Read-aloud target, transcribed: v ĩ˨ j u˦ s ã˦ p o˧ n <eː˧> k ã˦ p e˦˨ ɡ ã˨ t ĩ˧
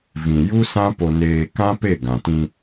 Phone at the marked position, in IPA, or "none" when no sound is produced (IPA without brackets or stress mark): eː˧